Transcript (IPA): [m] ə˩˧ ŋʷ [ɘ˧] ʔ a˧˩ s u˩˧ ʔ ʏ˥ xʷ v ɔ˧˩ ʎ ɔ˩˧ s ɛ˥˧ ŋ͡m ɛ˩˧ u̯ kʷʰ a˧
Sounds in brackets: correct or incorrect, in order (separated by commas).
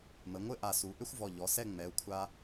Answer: correct, incorrect